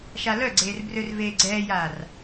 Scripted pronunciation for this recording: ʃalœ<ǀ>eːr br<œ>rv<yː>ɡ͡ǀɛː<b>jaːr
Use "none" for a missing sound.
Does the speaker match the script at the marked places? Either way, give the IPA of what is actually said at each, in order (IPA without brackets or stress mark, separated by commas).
ɡ͡ǀ, ø, eː, none